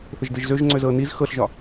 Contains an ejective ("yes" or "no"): no